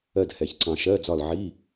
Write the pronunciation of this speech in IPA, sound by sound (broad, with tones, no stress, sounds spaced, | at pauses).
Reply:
ɜ˦˨ d h ɛ˨ ç ǀ ɑ̃˨ ʃ ɜ˧˥˧ d͡z ɒ˦˨ l ʕ i˧˥˧